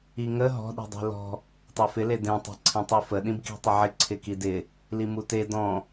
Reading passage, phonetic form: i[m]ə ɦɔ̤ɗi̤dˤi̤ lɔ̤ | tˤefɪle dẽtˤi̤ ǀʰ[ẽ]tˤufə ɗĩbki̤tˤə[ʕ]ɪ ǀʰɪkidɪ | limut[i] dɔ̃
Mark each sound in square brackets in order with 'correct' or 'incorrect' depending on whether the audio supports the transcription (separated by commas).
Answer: incorrect, correct, correct, incorrect